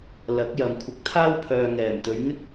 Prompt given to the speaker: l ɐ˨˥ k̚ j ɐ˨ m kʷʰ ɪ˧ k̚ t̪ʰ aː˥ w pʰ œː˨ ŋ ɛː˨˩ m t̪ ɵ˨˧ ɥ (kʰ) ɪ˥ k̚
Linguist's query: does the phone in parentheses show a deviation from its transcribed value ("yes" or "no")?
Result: yes